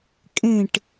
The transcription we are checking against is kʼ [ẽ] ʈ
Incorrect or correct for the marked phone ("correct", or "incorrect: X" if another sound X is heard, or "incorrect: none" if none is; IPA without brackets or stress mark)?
correct